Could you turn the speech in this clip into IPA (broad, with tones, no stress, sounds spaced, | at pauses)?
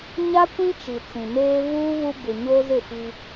ɲ a˦ kʷ ĩ˦ t͡ʃ i˨ t͡s ĩ˨ m eː˦ v uː˦ β u˦ b ɪ˨ ɲ o˦ z ɪ˦˨ f i˦